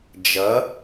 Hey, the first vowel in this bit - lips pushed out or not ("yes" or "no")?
no